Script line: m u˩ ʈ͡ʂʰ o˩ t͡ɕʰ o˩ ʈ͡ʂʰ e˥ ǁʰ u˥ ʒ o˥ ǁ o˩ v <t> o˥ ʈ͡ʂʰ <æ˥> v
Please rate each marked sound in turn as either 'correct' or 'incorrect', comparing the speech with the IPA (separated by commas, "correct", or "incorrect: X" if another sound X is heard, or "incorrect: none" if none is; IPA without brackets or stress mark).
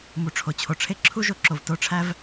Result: correct, correct